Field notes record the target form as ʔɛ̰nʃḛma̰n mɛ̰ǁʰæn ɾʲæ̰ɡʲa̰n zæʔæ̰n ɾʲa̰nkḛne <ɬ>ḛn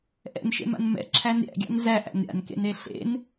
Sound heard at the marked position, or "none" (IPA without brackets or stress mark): ɬ